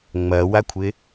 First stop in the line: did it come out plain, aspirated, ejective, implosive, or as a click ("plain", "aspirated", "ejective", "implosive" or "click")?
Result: aspirated